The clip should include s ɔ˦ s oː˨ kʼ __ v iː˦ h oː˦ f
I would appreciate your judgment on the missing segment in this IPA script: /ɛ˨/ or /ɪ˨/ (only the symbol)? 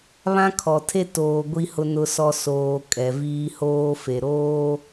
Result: ɛ˨